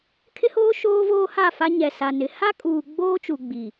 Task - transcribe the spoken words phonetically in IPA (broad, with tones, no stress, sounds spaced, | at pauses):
kʰ ɪ˦ h oː˦ ʃ oː˦ v oː˦ h a˦˨ f a˦ ɲ ɛ˨ s a˨ n ɪ˨˦ h a˦ kʼ uː˨ ɡ͡b oː˦ t͡ʃ u˨ ɡ͡b i˨